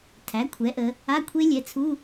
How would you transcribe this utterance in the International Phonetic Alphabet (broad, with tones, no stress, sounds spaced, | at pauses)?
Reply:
tʰ æ˩˥ kʷʰ ɛ˩˥ ʔ ə˩˧ | a˧˥˧ kʷʰ e˦˥ lʲ ɛ˩˥ t͡sʰ u˧˥˧